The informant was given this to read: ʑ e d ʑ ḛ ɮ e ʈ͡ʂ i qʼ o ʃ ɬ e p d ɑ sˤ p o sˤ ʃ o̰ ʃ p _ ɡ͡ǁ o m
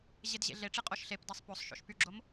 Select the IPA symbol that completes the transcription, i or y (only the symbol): y